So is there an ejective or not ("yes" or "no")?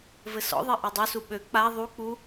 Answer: no